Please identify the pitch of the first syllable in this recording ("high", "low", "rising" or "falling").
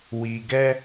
low